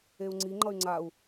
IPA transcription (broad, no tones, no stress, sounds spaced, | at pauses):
e u̯ ŋ͡ǀ i ŋ͡ǃ ʌ y̯ ŋ͡ǀ a u̯